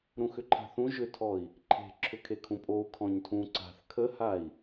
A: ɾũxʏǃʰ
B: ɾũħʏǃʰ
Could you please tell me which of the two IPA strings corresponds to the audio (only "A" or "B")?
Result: A